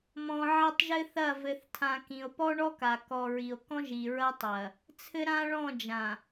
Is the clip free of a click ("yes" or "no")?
yes